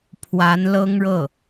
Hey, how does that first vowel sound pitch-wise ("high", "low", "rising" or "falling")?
rising